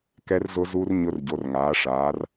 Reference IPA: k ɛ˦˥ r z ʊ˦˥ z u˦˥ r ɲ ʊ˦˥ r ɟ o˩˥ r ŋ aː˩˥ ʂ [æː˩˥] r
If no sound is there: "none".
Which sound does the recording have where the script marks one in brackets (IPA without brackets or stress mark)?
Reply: aː˩˥